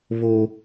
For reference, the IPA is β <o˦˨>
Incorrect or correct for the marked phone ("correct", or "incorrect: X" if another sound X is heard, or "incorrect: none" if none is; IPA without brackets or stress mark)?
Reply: incorrect: o˦